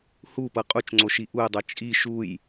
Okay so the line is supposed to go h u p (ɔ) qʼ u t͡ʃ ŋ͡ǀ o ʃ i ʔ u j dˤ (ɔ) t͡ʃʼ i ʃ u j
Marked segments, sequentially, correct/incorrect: incorrect, incorrect

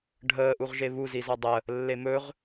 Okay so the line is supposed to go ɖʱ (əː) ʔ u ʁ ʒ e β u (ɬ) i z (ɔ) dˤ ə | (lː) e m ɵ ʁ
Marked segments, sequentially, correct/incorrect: correct, incorrect, correct, correct

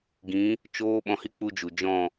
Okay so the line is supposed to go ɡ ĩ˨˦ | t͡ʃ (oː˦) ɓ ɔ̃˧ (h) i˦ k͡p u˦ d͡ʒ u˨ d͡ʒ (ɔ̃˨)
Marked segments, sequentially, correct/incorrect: correct, correct, incorrect

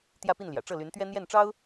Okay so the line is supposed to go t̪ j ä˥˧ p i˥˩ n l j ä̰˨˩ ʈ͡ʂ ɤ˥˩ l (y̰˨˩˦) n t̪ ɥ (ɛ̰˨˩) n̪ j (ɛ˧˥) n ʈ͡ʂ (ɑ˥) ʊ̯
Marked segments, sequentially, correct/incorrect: incorrect, incorrect, incorrect, correct

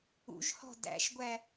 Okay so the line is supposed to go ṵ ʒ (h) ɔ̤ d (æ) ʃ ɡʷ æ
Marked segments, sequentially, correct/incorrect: correct, incorrect

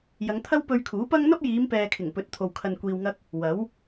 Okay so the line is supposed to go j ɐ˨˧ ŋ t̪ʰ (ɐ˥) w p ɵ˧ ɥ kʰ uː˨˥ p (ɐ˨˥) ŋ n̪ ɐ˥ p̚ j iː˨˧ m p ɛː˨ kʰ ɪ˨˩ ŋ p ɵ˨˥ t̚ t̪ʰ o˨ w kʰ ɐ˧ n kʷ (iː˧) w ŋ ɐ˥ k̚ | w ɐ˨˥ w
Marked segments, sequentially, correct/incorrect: correct, incorrect, correct

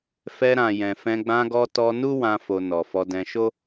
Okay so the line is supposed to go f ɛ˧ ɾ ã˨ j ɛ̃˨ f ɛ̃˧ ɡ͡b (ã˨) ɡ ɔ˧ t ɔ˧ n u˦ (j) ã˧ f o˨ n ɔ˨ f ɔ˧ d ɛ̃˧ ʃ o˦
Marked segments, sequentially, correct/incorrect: incorrect, incorrect

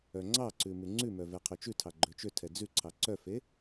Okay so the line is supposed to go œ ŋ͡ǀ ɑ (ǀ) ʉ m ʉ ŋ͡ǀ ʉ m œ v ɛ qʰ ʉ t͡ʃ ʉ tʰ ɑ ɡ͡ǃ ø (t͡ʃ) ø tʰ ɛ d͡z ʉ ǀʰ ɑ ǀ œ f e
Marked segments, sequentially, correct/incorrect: correct, correct

